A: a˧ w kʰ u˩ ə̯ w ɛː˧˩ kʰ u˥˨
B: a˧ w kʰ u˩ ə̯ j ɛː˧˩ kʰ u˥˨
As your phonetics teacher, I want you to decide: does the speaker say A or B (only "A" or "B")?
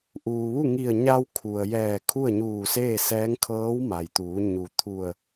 B